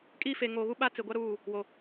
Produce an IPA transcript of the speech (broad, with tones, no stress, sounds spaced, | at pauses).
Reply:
kʼ iː˦ f e˨ ŋ o˨ ɣ u˦ ɓ a˦ t͡s ɪ˨ ɡʷ a˦ ɾ uː˦˨ | w o˨